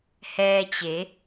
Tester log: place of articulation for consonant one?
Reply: glottal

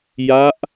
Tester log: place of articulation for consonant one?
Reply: palatal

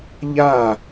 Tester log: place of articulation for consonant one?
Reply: palatal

